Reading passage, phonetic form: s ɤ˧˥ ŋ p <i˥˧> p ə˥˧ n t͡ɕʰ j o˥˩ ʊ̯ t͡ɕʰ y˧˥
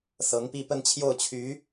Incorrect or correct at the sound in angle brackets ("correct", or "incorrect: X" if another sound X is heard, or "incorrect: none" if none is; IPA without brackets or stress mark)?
correct